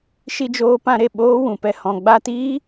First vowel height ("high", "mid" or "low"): high